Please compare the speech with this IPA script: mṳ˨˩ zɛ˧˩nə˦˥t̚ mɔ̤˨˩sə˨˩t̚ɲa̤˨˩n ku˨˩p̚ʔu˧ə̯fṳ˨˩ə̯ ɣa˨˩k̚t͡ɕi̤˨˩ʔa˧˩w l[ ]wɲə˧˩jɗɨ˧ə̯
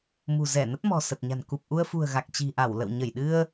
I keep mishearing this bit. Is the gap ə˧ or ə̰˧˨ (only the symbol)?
ə̰˧˨